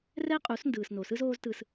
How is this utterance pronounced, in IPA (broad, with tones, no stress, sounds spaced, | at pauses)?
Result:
r ɛ˦ qʼ u˨˦ s n d ɯː˨ s n o˨ s ɯ˦ z oː˦ z t ɯ˧ s